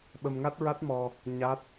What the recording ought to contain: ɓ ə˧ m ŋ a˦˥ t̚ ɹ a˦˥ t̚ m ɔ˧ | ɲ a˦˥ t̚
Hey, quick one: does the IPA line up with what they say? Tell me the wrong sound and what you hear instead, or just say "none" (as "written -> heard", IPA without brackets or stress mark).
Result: none